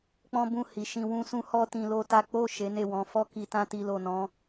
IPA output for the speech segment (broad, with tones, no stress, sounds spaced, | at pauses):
k͡p ɔ̃˦ b ũ˦˨ h i˨ ʃ ĩ˧ w ũ˦ s ũ˦ h ɔ˦ t ĩ˧ l o˦ t a˦ k͡p o˦˨ ʃ e˨˦ n e˦˨ w ɔ̃˨˦ f ɔ˦ k i˧ t ã˦ t i˧ l o˨ n ɔ̃˨˦